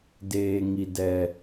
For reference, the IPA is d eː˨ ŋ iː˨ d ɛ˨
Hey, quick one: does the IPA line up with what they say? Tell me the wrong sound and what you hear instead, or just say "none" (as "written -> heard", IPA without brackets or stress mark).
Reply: iː˨ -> i˨